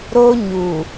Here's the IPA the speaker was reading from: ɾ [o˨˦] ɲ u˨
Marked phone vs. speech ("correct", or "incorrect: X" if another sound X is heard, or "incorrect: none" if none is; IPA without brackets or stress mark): incorrect: o˦